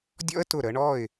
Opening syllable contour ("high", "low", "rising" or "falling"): high